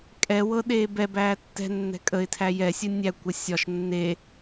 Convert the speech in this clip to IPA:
kʼ ɛ w ɤ ɗ eː b ɛ b æː tː ɛ̤ nː ɛ̤ kʼ ə ɪ̯ tʰ æ j ɛ sʲ ə nʲ æ kʷ ə sʲ ɒ ʃ nː e

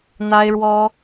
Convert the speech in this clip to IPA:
n̪ a˥ ɪ̯ ɻ w ɔ˥

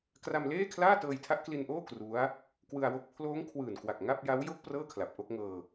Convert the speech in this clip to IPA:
k r a˧ m l eː˥˩ kʰ l aː˥˩ t ɤː˧ j tʰ a˦˥ ʔ k l i˧ n ʔ oː˥˩ k r u˦˥ a̯ | k w ɯ˧ a̯ w o˦˥ k̚ pʰ l oː˦˥ ŋ kʰ w ɯː˨˩ n k w a˨˩ k̚ ŋ a˥˩ p̚ j a˦˥ w j o˦˥ k̚ p r ɤː˥˩ kʰ l a˨˩ p̚ ʔ o˥˩ k̚ ŋ ɤː˧

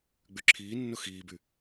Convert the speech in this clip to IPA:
ɡ͡b y ǁʰ iː nː ʊ x iː b y

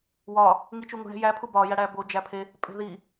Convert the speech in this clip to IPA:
w ɒ | ŋ i t͡ʃ u ŋ ṳ ɳ e̤ j æ pʰ u b ɒ j æ ɽ æ b o d͡ʒ æ pʰ e | pʼ e̤ ð i

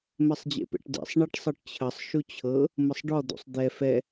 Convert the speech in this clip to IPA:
m ɛ sˤ d͡ʑ ḛ p ḛ ʈ d ḛ sˤ ɳ ɛ ʈ sˤ ɤ ʈ t͡ɕʰ ə sˤ ʃ u t͡ɕʰ ɤ | m ə sˤ ɖ ɔ d̪ ṵ sˤ d̪ ɛ f ɛ

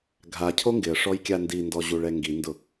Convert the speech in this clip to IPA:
ɡʱ a cʰ o ŋ ɡ ɪ ə̯ ʂ ɔ j kʲ a n d i n d ɔ ʑ u ɭ ɛ ŋ ɡ i n d ʊ

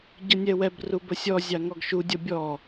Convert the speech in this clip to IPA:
ɟ ʌ nʲ ɛ w ɛ b r u b ə sʲ ɔ zʲ ɑ ŋ ɔ ɡ ʃ u dʲ ʌ bʲ ɔ

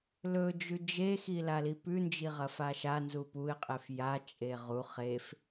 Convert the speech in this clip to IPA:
l ɵ d͡ʒ ʉ d͡ʒ e x i l a l i p ʉ n d͡ʒ i ʁ ɐ f a ʃ a n z u p u ɪ̯ qʼ e f j a t͡ʃʼ e ʁ u χ e f

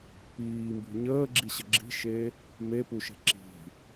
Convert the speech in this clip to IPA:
p iː m b ṳ ɲ əː ɡ͡ǁ i ɕ ə ɡ͡ǁ i̤ ʃ e | m e p u ʃ e̤ ǁ i̤

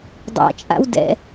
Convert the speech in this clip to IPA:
dˤ a̰ t͡ʃʼ a̰ w d ɛ̰

